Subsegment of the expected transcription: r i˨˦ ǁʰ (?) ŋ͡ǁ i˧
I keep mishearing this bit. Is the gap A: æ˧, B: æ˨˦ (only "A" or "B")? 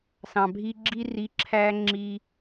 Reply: A